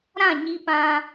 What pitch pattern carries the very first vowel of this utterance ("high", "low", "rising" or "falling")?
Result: falling